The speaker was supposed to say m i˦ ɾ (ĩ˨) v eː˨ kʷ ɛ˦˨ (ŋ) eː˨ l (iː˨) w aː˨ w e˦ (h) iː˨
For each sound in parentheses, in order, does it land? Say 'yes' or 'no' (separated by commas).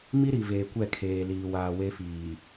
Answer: no, no, yes, no